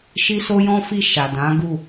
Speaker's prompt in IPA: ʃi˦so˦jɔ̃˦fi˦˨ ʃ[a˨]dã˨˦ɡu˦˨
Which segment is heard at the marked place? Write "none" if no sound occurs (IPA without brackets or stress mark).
a˨